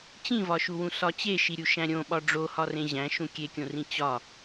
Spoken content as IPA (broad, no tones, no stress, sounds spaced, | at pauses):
t͡ɕ ĩ v ɒ ʃ u w ũ s ɒ t͡ɕ e ʃ i ɾʲ u ʃ æ̃ ɾʲ õ ɓ ɒ ɖ͡ʐ o h ɒ r ẽ ʑ æ̃ ʃ ũ kʲ e kʲ õ r ĩ t͡ɕ ɒ